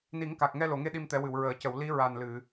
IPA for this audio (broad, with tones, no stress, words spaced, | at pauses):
ni˨˩˦ŋka˨˩k̚ŋɛ˧ lo˨˩˨ŋe˧ ɗi˧mt̪ɛ˨˩˦wɨ˨˩˨w ɹəː˨˩˨cə˨˩˨w li˧˥ ɹa˨˩nlɨ˨˩˨